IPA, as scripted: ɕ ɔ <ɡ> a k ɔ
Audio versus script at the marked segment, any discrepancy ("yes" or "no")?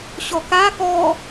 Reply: yes